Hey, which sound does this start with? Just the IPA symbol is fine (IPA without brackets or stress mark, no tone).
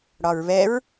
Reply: ɽ